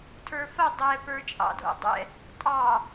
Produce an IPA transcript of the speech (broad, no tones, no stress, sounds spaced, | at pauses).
tʰ ə˞ f ɐ dˤ ɛ p ə˞ t͡ʃʼ ɑ̰ dʱ o̰ dˤ ɛ̰ | tʼ ɑ